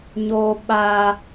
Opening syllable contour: high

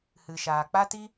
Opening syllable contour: low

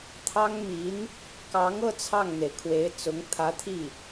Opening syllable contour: high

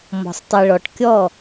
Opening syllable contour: low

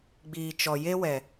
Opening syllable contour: low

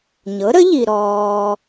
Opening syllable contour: rising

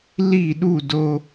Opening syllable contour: falling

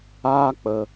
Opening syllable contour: high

